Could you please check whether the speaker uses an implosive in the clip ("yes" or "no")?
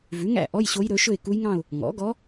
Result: no